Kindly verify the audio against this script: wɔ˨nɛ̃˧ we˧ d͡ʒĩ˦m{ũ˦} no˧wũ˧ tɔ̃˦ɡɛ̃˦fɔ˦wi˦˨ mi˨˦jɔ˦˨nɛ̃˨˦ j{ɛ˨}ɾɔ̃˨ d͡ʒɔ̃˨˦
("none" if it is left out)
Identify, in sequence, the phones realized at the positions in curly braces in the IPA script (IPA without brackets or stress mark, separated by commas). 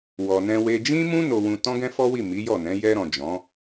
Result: ũ˦, ɛ˧